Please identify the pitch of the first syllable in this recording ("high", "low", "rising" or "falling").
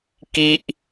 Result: high